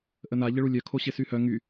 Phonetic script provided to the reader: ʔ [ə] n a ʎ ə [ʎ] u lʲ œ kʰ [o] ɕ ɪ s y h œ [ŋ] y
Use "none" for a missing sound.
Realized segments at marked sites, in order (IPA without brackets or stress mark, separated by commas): ə, ɭ, o, ŋ